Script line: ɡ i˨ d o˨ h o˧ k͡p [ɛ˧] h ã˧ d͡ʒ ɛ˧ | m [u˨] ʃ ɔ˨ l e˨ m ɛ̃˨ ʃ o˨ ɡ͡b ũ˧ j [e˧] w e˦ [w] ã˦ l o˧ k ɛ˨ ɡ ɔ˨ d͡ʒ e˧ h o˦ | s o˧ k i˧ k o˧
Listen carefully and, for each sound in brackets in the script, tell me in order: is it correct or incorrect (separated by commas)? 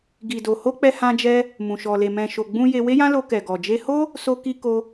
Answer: correct, incorrect, correct, incorrect